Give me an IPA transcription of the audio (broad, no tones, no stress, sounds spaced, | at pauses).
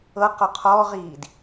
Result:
ɤ q ɔ qʰ ɔː ʁ iː d